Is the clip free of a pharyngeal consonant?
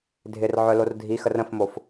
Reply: no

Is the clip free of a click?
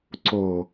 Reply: no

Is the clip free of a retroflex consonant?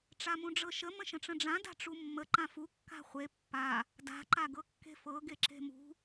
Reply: no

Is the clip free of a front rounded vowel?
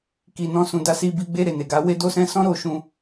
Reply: yes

